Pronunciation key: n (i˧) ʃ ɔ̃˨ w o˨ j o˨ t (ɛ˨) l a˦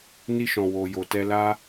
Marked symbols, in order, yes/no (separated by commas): yes, no